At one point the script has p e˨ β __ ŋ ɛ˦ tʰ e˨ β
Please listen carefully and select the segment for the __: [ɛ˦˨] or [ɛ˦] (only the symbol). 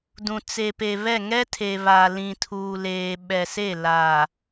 ɛ˦˨